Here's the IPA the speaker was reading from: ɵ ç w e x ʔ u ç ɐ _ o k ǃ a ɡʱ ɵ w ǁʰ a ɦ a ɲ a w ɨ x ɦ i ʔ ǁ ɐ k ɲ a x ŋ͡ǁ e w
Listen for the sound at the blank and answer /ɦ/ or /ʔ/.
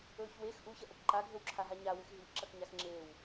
ʔ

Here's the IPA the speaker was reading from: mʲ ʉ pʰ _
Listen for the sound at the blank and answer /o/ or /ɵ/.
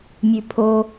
o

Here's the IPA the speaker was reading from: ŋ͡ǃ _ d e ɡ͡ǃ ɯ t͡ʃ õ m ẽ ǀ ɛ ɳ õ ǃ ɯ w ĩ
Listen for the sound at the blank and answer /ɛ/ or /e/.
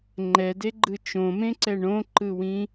ɛ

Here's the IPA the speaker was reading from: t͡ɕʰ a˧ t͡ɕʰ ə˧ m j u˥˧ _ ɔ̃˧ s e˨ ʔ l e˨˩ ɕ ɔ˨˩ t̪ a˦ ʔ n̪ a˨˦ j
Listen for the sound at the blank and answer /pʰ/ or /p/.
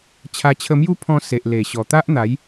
pʰ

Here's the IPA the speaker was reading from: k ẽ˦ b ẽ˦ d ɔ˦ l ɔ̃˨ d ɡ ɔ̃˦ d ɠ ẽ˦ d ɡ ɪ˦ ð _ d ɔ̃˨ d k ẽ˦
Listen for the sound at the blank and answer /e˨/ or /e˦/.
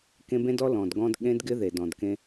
e˨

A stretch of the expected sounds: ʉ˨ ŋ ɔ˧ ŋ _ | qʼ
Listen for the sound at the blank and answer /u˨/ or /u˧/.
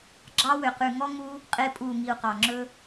u˧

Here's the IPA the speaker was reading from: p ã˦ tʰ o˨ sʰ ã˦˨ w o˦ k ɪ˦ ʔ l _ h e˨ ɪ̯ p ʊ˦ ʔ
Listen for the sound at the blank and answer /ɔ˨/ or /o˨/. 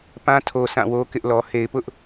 ɔ˨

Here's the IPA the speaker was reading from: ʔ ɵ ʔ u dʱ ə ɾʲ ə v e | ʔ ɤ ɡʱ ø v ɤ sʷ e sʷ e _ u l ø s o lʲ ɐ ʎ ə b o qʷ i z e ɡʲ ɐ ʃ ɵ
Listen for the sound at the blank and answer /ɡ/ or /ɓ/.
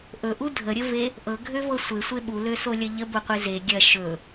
ɓ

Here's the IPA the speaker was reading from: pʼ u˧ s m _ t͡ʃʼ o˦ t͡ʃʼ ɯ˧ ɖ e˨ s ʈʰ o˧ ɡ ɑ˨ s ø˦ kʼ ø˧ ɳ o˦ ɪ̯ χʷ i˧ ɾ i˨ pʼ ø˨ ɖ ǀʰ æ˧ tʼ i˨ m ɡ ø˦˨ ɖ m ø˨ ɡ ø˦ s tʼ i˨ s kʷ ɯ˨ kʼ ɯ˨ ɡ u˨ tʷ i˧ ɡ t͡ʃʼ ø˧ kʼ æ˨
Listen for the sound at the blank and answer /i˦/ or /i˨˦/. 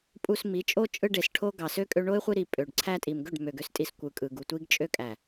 i˨˦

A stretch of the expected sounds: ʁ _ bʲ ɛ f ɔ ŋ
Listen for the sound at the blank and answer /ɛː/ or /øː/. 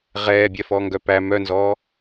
ɛː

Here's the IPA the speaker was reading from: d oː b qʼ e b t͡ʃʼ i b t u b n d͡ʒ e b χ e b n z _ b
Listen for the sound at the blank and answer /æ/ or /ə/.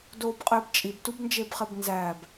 æ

